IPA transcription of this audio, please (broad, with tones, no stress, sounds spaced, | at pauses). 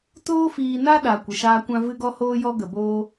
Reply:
t oː˦ f iː˧ n a˦ ɗ a˨ kʷ ə˨ ʃ aː˧ kʷ ã˧ v ɨ˦ ɡ ɔ˦ h oː˦ j ɔ˦ ɡ ə˨ b oː˧